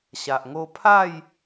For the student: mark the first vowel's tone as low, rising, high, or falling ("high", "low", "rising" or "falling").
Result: low